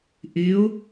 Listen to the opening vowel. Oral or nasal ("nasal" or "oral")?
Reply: oral